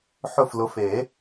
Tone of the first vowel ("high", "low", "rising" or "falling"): falling